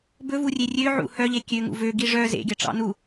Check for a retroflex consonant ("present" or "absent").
present